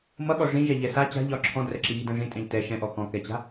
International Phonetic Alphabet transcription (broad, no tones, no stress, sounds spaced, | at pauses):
m ʌ ɠ ɔ ʐ ĩ ʒ ɛ ʎ ɛ s a t͡ɕ a̤ ʎ ɒ ǁʰ ɔ̃ d r ɛ ǁ i ɣ i d ɛ̃ ʐ ĩ tʼ ɛ̃ ʎ t ɛ ʃ ɛ̃ ʔ ɔ x ɔ̃ k ɛ t͡ɕ a̤